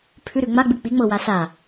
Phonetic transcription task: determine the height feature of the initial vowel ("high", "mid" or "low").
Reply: high